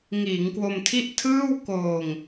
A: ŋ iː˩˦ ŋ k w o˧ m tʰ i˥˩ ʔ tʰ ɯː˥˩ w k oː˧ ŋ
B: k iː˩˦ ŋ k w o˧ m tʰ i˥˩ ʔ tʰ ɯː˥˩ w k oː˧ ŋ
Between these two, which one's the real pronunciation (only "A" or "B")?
A